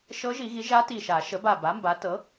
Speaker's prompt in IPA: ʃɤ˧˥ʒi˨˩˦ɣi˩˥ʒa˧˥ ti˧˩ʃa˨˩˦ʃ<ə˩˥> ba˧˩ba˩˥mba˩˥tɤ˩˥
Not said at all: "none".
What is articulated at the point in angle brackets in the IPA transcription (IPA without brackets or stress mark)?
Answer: ə˩˥